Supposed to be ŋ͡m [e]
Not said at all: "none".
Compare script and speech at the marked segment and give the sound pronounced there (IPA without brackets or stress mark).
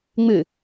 ɨ